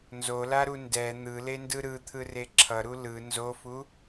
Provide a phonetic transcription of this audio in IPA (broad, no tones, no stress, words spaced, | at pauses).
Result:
nzolaɾu ndɛ n̪ɯlendɯ ɾɯt̪ʰɯre ǁʰʌɾu lɯ nzofu